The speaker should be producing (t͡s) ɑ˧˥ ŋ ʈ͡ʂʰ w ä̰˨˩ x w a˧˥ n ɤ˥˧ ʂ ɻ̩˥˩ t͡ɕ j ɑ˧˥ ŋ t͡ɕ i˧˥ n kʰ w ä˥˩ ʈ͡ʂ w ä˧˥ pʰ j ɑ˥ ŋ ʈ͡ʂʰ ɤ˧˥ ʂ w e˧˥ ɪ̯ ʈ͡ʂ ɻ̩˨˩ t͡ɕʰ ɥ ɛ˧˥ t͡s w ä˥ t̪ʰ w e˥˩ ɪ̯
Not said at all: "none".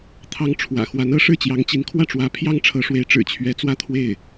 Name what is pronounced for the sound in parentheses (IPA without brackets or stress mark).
t̪ʰ